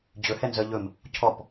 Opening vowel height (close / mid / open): mid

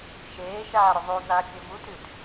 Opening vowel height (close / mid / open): mid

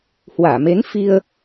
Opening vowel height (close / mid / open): open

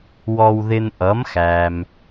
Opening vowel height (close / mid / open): mid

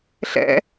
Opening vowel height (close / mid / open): mid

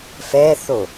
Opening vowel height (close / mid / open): mid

